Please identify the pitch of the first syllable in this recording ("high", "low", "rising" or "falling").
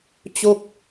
falling